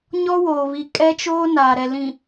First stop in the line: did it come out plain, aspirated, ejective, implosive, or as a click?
ejective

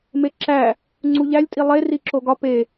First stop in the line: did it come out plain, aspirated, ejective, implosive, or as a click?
click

